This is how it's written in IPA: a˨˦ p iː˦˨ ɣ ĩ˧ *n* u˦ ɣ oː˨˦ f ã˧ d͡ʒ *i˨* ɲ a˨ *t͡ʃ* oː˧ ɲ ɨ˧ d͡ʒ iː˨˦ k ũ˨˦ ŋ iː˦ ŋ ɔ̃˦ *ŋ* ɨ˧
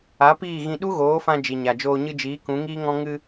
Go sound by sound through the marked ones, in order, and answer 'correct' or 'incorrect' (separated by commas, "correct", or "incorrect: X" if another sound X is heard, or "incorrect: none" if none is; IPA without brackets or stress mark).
incorrect: ɗ, correct, incorrect: d͡ʒ, correct